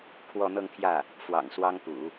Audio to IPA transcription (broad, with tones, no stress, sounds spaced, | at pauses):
kʰ w ɔ˥˧ n̪ ɤ˥˧ ŋ t̪ʰ j ä˥˩ | f w ɑ̰˨˩ ŋ s w ɑ˥ ŋ p ṵ˨˩˦